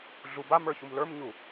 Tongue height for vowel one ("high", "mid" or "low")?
high